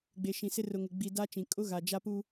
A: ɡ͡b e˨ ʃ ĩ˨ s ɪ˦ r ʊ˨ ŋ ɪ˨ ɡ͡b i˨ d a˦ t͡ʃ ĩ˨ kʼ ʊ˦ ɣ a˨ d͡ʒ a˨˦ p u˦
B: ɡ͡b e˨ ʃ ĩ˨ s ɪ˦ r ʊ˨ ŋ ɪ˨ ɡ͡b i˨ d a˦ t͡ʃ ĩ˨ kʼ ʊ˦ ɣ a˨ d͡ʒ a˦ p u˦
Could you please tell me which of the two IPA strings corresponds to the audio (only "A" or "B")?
B